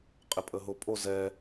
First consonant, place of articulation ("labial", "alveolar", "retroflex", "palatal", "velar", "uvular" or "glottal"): uvular